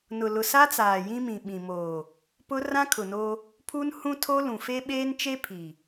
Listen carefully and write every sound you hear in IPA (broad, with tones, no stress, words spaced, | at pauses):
nʊ˨lʊ˨sa˦t͡saː˨ jĩ˦mĩ˨ ɓĩ˨moː˨ | pʊ˦ rã˦kʰʊ˨no˦ | pʰu˦n hũ˦tʰo˦lũ˨ fe˦ɓeː˦nt͡ʃe˦ pʰi˨